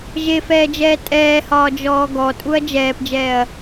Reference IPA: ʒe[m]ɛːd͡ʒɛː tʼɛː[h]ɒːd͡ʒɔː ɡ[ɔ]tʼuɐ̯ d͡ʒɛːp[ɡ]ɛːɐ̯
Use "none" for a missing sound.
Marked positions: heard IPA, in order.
f, h, ɔ, d͡ʒ

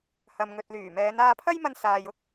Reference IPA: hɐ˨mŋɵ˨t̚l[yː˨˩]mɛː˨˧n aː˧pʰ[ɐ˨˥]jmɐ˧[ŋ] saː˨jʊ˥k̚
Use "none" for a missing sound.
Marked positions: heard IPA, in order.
yː˨˩, ɐ˥, n

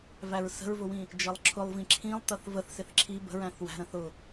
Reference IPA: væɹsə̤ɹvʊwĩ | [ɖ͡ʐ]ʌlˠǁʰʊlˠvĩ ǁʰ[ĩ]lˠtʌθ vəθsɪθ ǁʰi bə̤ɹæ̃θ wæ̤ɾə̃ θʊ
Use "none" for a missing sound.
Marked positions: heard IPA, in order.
d͡ʒ, ĩ

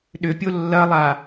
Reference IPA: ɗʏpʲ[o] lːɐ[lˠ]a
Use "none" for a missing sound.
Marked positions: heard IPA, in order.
o, lˠ

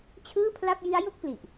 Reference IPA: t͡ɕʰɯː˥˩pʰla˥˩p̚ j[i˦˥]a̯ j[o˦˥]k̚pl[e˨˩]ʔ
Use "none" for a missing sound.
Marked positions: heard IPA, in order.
i˦˥, o˥˩, i˨˩

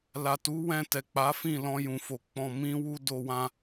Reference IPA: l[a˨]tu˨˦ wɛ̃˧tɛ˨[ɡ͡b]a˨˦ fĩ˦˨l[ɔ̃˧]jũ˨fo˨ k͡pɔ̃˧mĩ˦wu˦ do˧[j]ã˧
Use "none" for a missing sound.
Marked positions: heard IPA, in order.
a˨, k͡p, ɔ̃˧, w

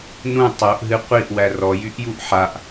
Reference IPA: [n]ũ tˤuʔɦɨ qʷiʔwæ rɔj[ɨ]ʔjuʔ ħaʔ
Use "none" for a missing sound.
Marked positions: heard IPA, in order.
n, y

